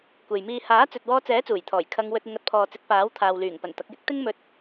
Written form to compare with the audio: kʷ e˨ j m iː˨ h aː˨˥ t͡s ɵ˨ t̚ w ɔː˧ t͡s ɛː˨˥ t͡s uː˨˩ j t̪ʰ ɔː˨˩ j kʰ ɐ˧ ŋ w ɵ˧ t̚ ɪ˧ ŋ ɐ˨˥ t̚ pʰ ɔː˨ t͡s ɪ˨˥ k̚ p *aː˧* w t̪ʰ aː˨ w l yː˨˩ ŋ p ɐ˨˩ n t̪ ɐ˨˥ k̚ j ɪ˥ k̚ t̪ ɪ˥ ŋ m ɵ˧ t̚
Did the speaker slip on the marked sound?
yes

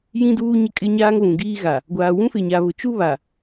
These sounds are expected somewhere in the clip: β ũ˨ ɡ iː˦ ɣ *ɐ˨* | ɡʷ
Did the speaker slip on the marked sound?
yes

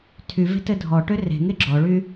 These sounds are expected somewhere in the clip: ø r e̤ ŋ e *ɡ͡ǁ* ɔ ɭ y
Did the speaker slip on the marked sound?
no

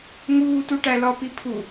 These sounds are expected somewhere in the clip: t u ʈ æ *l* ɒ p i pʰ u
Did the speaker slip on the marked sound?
no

